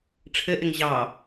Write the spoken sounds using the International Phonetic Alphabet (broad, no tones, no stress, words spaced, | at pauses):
ʈ͡ʂʰɘʔɪŋ ʑɑ